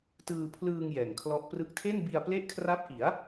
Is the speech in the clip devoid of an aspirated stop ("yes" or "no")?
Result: no